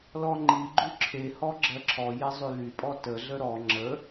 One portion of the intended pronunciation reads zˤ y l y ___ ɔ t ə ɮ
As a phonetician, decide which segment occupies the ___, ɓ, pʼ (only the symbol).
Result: pʼ